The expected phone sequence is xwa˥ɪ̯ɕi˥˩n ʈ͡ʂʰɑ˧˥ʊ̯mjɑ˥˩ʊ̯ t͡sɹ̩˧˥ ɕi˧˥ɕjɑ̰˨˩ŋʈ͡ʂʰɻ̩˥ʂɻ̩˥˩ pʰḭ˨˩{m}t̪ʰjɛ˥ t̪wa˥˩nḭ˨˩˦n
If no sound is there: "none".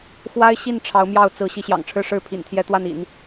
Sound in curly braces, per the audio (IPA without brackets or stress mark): n